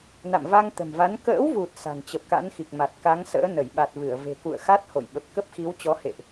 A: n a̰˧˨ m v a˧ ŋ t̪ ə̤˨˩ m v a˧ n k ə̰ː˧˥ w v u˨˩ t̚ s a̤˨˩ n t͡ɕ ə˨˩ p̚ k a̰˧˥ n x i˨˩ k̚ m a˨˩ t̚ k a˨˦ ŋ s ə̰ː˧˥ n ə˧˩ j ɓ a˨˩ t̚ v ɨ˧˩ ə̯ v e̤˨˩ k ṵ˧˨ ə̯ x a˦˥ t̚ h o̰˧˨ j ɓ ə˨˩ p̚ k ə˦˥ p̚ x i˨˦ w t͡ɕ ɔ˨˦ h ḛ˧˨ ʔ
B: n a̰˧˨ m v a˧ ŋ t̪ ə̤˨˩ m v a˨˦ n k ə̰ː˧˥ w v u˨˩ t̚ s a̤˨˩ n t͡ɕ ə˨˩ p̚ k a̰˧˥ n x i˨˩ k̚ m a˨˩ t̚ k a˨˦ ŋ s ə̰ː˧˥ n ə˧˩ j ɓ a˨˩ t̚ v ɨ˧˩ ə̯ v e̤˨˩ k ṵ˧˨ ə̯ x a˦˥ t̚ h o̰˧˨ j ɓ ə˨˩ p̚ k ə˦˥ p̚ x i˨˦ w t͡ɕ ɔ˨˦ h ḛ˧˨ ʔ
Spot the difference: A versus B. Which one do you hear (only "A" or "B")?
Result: B